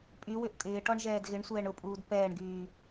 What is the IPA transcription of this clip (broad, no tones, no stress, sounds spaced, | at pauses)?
pʼ y w ʏ ʔ tʼ ɪː ʈ ɔ ɳ ʒ ɛː d ɣ ɪ ɳ sʷ ɛː ɳ ʊ pʼ uː d p ɛː ɳ ɡ yː